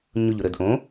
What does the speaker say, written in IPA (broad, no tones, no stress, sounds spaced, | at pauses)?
ɲ ʊ ʎ ʊ ɾ ə d ʔ õ